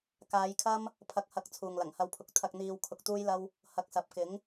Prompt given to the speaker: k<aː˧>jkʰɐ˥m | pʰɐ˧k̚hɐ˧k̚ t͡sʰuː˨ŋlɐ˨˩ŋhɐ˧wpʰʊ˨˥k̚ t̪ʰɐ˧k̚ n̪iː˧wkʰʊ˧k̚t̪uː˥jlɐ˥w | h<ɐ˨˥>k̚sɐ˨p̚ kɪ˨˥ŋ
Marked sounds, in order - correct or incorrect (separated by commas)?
incorrect, correct